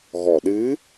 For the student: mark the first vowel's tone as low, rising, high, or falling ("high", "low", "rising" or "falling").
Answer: low